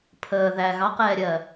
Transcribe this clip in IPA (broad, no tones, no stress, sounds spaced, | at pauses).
pʰ əː ð æ ɣ ɑ q ɛː ɾʲ ɜ